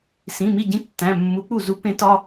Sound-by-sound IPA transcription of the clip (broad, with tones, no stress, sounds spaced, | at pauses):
s ĩ˩˧˩ m i˥˩ ɟ ĩ˦ tː æ̃˩˧˩ mː u˨˦ k͡p u˥˩ z u˦ p ẽ˦ t ɒ˦